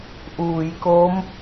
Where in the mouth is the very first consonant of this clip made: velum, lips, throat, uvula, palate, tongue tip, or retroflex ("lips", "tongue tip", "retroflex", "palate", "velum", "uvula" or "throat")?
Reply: throat